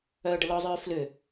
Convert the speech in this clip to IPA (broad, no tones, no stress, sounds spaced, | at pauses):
œː ɖ ə l ɔ zˤ œː f l ʏ